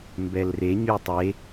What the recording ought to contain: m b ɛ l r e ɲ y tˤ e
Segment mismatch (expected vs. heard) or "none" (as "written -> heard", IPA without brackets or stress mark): none